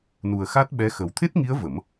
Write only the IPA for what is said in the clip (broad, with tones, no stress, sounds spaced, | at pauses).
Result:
n u˨˩ ə̯ x a˦˥ t̚ ɓ ɛ˧˥ x ə˨˩˦ w t̪ʰ e˦˥ t̚ ŋ i˧˥ ə̯ v ə˨˩˦ m